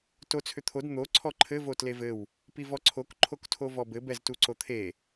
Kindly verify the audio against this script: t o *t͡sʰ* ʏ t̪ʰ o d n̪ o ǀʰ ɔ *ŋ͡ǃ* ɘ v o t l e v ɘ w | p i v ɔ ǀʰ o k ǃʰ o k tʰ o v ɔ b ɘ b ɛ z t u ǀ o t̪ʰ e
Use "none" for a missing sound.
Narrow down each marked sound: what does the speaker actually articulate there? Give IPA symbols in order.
t͡sʰ, ǃʰ

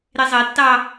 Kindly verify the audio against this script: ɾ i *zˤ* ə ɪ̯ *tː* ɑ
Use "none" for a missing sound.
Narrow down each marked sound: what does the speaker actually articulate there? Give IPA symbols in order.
zˤ, tː

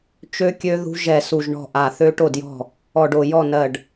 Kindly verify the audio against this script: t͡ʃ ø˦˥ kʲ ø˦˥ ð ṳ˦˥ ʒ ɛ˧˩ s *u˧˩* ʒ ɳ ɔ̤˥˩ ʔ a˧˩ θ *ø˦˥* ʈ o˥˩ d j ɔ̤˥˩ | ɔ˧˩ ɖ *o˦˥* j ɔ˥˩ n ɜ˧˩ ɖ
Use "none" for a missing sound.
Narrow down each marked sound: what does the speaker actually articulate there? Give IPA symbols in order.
u˧˩, ø˦˥, o˧˩

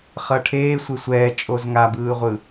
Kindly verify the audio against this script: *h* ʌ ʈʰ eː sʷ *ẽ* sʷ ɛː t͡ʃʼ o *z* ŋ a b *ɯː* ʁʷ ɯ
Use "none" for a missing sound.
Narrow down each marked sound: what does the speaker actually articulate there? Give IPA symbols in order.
χ, e, z, ɯː

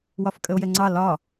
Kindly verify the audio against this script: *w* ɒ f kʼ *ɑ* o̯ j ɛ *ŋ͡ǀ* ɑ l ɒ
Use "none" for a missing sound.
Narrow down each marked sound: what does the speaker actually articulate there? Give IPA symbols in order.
w, ə, ŋ͡ǀ

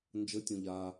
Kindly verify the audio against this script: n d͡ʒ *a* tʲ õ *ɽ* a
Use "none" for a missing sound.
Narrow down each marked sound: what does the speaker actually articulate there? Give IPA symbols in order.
ə, ʎ

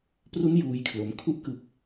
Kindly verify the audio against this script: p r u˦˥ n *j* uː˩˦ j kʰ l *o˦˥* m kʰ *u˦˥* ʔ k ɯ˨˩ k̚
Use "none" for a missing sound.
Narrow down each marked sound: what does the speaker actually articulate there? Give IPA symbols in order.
j, o˩˦, u˦˥

